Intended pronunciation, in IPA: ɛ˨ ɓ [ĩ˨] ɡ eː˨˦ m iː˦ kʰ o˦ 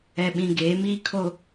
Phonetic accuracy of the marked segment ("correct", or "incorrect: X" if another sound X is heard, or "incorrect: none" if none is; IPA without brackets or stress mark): correct